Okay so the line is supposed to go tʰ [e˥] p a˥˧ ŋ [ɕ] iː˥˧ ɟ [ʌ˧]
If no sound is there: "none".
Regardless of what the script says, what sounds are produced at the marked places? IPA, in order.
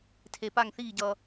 e˧, θ, ʌ˧

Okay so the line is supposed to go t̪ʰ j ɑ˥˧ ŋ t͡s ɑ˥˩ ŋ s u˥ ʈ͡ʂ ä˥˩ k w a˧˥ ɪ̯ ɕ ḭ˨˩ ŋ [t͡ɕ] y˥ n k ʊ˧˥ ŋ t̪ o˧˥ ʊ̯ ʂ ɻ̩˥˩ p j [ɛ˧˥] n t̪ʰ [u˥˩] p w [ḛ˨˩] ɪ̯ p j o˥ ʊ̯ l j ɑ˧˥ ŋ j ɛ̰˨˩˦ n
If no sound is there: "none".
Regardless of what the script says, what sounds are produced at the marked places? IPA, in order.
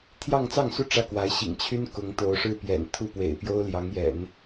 t͡ɕʰ, ɛ̰˨˩, u˥˩, ḛ˨˩

